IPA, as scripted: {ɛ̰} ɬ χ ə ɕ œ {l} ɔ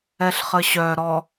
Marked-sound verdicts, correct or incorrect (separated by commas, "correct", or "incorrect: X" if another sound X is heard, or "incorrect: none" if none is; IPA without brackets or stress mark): incorrect: ɛ, incorrect: ɾ